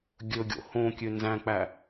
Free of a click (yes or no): yes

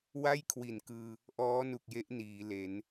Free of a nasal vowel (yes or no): yes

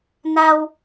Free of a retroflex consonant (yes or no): yes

